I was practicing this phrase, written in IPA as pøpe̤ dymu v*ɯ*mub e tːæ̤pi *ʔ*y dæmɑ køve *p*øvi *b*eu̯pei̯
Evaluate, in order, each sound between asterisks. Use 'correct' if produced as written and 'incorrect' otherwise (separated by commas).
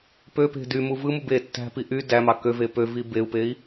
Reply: correct, correct, correct, correct